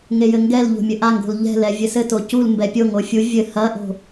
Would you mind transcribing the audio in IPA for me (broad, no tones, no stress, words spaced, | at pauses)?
ŋejɘŋɡɛlʎo̤ mʲɘʔaŋɡo̤l ʎɛ̤lɛ vʲɘsɘto cul mbɛpʲoŋo fʲu vʲɘ hɐʔo̤